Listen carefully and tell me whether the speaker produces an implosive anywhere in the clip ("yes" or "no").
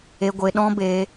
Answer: yes